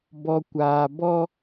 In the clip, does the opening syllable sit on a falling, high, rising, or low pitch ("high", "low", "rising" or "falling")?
low